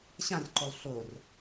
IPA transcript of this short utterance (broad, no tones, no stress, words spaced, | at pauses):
ɕãrǃolˠ ɬor